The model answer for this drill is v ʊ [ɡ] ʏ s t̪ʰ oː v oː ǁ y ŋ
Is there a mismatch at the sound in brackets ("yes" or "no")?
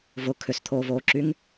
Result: yes